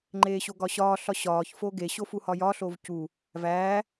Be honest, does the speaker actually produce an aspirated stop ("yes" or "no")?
no